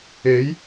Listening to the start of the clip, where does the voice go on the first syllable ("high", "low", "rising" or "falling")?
rising